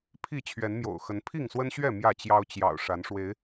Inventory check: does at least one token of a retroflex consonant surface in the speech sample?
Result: yes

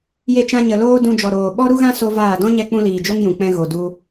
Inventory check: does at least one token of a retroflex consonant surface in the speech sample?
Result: no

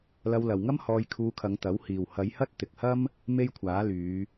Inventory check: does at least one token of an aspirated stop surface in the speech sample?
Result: yes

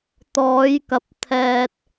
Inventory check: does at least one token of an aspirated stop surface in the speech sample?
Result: yes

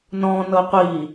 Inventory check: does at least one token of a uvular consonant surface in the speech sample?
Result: yes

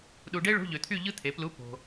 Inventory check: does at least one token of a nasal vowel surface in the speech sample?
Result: no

